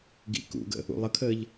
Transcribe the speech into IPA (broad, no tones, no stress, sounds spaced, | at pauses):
ɡ ḭ k ṵ ɡ ə̰ | ṵ lˠ ə kʰ əː ʎ